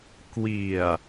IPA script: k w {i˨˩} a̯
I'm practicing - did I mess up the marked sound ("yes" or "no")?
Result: no